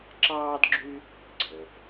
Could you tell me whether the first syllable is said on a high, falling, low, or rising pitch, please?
high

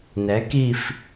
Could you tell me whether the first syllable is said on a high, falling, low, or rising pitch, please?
rising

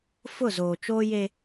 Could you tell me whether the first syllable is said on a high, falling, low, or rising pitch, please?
falling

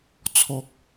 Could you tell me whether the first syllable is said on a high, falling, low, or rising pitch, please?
low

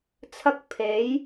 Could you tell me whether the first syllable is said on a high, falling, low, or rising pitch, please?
high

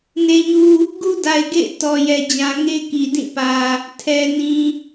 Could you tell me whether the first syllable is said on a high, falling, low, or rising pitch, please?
low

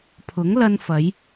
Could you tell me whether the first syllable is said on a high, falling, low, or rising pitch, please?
rising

